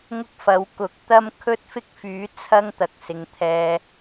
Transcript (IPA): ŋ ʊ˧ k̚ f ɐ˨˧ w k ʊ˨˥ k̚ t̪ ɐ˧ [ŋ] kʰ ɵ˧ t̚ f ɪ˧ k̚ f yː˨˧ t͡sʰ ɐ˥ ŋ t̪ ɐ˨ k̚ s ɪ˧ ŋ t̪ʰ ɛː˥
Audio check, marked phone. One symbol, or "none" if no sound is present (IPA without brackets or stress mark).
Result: m